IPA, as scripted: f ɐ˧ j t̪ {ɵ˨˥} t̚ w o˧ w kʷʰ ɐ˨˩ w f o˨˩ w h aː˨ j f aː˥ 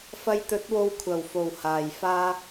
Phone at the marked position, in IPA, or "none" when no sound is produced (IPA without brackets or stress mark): ɵ˨˥